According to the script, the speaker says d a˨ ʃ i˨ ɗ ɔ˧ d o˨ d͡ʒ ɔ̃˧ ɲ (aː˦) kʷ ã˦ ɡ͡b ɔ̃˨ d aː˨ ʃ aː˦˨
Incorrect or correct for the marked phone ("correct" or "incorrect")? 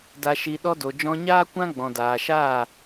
correct